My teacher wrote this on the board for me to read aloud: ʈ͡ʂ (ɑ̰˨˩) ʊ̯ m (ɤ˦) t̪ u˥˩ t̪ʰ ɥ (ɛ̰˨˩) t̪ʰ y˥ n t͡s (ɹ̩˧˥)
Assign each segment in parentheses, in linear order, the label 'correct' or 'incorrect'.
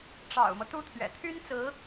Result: correct, correct, correct, correct

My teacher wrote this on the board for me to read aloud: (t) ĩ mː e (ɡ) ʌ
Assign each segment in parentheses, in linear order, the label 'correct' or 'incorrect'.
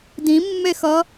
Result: incorrect: d, incorrect: x

